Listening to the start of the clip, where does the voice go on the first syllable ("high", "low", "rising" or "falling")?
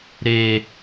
high